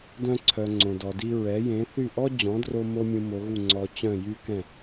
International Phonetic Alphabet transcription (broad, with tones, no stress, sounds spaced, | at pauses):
d œ̃˧ ǀʰ œ˩ ŋ͡ǀ õ˩ d ɔ˩ d i˧ ɹ ɛ˩˥ j ẽ˩˥ θ y˥˩ ʔ ɔ˥ d͡ʑ ɔ̃˩˥ d r o˧ m o˥ mʲ ũ˧ m o˩˥ ɣ u˥˩ ŋ͡ǀ ɔ˧ t͡ɕ œ̃˥˩ j y˥ k ɛ̃˥˩